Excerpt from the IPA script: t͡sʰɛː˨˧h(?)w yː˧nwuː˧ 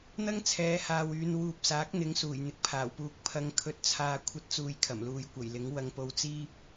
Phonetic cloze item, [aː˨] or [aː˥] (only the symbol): aː˨